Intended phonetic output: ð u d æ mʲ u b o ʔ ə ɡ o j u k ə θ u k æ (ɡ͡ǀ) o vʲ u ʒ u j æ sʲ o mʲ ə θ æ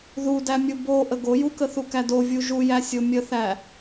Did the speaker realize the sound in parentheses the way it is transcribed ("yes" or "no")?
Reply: no